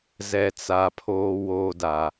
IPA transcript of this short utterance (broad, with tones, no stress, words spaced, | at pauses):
zɛ˨t͡sa˨ pʰoː˨woː˨da˨